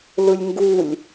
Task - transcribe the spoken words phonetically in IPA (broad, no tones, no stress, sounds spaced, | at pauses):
l ɯ lʲ ŋ ɡ u lʲ